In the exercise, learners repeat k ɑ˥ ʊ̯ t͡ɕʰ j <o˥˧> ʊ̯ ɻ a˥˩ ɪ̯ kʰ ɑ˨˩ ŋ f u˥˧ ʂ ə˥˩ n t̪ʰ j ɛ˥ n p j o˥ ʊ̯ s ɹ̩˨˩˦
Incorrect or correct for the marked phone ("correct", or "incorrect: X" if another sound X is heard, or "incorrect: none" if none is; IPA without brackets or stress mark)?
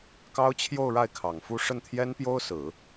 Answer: correct